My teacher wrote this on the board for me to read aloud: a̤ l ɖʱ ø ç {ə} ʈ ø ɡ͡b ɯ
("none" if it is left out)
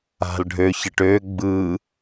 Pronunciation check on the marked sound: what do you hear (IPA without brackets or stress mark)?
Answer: ə